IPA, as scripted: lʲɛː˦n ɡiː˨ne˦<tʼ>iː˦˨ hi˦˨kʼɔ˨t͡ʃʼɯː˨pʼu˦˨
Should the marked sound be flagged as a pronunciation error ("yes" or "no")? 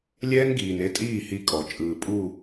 no